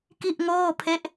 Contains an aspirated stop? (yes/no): yes